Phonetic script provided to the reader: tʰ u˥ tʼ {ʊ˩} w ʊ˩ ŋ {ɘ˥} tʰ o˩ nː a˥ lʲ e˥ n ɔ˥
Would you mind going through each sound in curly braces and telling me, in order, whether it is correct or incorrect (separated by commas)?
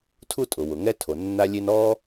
correct, incorrect